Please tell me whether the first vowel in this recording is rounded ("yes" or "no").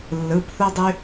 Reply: no